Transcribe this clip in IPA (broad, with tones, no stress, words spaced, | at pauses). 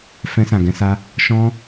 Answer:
fɛ̃˧sã˨ɡɛ̃˧sa˧ | ʃɔ̃˦